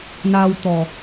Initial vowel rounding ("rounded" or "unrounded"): unrounded